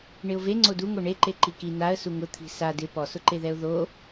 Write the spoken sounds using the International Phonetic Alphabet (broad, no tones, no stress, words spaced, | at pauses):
ɳɪʊ̯ve ŋ͡ǀoduŋo ɳeǃe ǃiki naə̯ suŋʊ t̪ʰi̤sa dɪ pɔsʊǃeðɛʊ̯ ðo